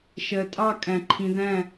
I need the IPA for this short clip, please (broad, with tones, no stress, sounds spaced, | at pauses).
ʃ ɜ˨ tʼ ɑ˦˨ kʼ æ̃˨ ǃʰ ĩ˨ ð æ̃˦˨